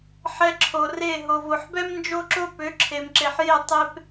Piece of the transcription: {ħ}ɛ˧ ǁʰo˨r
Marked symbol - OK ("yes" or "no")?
yes